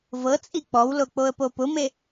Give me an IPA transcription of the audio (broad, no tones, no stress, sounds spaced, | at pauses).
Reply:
v ɤ t͡sʼ i k͡p ɔ w l o k͡p o ə̯ p o p ʊ m e